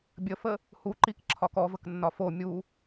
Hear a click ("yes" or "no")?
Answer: yes